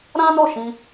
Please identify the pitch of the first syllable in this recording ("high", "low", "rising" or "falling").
high